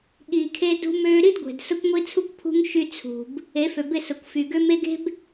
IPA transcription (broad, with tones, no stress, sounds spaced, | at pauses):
ɠ iː˨ kʰ e˦ d ṳ˦ m øː˦ ɾ i˦ d ɡʷ e̤˨ d s ʊ˦ kʷ ŋʷ i˦ t͡sʰ u˦ kʷ pʰ ṳ˦ ŋ ʃ y˦ t͡sʰ ṳ˨ b | e˨˦ f ø˨ b ɪ˦˨ s ʊ˨ kʷ f y˨ ɡ ø˦ m e˦ ɡ e̤˦ b